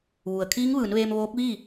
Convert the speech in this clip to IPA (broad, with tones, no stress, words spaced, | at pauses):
ʋu˩ə̯kʰiː˧˥ŋʋɯː˩˧nʋeː˧m ʋoː˧˥k̚ʋiː˥˨